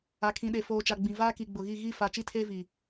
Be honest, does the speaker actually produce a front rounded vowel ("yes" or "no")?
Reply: no